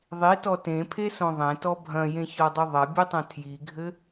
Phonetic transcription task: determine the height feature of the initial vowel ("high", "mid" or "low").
high